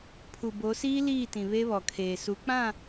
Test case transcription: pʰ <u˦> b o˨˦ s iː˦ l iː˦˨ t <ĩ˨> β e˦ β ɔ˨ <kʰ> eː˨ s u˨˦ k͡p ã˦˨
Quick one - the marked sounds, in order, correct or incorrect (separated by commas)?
incorrect, correct, correct